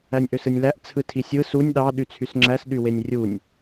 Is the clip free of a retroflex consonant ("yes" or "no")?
yes